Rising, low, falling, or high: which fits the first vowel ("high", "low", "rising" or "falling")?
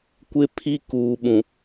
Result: high